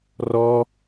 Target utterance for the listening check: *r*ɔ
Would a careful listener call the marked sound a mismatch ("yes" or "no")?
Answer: no